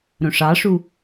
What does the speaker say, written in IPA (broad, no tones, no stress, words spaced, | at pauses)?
ɾõʂɑʂu